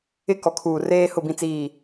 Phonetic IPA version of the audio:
ɪ˦ k ɔ˨ kʰ uː˨ r eː˦ h ʊ˦˨ b ĩ˦ t͡s iː˦˨

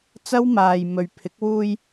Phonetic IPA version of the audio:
t͡s ɐ˥ w m aː˧ j m ɵ˨ ɥ pʰ ɪ˨˥ k̚ w uː˧ j

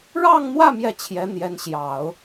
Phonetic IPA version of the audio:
ɻ ɑ˥˧ ŋ n̪ w ä˥˧ m j ɛ˥˩ t͡ɕʰ j ɛ˧˥ n̪ j ɛ˧˥ n ɕ j ɑ˨˩˦ ʊ̯

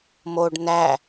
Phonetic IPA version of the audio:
m o ɖ n æ

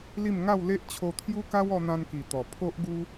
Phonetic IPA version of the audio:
l i˥˧ m ŋ a˥˧ w l e˦ ʔ t͡ɕʰ o˧ t̪ʰ j u˦ k a˦ w ɔ˧ n̪ ã˧ n k i˨˩ t̪ ɔ˨˩ pʰ o˦ ʔ ɡ u˦

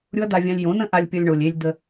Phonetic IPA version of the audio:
ɾʲ ʊ˦ ɐ̯ d̪ a˧ vʲ ã˧ lʲ j õ˨˦ n ə̃˦ ʔ a˧ lʲ pʲ ʌ˧ lʲ ɳ o˨ lʲ e˧ lʲ d̪ ə˧

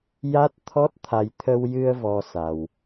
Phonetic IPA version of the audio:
j a˦˥ t̚ t̪ʰ ɔ˦˥ t̚ t̪ʰ a˧ j t̪ʰ ə˧ w j ɨ˧ ə̯ v ɔ˧ s a˧ w

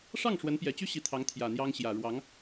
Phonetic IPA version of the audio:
ʂ ɑ˥˩ ŋ ʂ w ə˧˥ n p j ɛ˨˩ t͡ɕ y˥ ɕ i˧˥ t̪ʰ ɑ˧˥ ŋ t̪ʰ j ä˨˩ n̪ j ɑ˥ ŋ ɕ j ä˨˩ ɻ w ɑ˧˥ ŋ

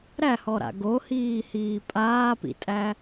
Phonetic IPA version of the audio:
ɾ æ h ɔ ɾ a̰ ɡ o h iː h iː pʼ aː p ḭ tʼ æ

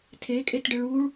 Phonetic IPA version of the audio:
tʰ e kʼ e t ɖ ɘ ɭ u ɭ

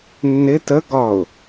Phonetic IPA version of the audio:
nː ɪ t ə ɡ ɒ ʊ̯

